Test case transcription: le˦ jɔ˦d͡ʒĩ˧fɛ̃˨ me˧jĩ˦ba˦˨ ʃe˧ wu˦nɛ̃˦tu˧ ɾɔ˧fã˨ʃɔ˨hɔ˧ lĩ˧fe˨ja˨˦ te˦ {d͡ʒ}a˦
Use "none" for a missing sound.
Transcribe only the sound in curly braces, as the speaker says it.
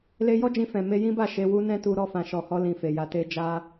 d͡ʒ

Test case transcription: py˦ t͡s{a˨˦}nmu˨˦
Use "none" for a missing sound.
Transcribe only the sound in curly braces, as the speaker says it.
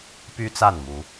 a˥˨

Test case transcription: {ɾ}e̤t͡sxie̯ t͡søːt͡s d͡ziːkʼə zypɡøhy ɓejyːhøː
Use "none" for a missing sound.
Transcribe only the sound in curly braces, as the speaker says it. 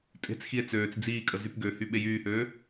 tʼ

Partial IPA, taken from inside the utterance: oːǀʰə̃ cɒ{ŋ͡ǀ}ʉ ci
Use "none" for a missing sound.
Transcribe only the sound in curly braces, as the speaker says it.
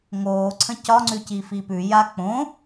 ŋ͡ǀ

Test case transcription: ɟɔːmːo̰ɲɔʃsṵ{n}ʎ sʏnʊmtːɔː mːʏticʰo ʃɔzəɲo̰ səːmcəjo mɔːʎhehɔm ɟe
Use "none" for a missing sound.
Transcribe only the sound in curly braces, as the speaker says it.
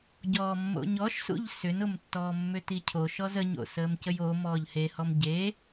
none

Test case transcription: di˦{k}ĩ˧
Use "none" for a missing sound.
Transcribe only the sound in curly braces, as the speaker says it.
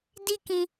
k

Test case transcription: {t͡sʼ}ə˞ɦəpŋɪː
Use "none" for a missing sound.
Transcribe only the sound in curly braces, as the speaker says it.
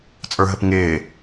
t͡sʼ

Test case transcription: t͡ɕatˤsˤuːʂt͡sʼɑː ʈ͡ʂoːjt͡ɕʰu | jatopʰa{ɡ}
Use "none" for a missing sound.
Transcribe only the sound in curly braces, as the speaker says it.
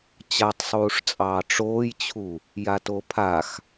x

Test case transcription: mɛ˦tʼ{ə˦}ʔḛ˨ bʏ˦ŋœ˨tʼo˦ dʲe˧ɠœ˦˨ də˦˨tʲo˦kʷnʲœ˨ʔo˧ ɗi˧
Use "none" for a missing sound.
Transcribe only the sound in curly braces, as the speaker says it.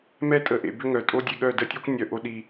ə˨˦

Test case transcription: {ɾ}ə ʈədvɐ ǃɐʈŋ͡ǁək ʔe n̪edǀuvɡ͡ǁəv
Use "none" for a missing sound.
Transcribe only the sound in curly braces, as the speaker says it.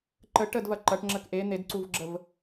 ǃ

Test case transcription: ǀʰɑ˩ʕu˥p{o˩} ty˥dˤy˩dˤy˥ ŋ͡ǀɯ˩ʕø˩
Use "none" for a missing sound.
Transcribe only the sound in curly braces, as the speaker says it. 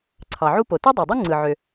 o˩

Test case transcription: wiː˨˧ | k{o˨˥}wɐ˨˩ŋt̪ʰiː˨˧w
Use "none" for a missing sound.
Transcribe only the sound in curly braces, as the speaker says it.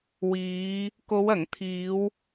o˨˧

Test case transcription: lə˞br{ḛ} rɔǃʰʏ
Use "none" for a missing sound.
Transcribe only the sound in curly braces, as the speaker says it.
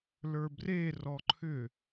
e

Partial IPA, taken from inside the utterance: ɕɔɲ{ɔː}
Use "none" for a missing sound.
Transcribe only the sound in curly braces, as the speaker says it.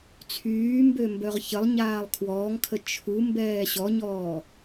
ɔː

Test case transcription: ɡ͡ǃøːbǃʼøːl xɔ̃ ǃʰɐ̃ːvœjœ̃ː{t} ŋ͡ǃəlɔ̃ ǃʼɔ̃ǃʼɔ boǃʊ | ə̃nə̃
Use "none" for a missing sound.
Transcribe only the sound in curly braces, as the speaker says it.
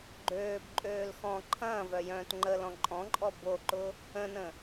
t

